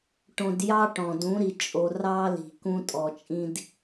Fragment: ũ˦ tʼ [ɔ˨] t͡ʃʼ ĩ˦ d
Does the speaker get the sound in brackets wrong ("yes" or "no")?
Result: no